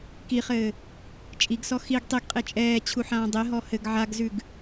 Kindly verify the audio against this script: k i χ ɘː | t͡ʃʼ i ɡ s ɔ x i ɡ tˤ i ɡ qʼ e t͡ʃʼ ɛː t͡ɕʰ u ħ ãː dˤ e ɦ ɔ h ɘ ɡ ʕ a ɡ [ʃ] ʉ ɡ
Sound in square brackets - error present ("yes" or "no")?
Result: yes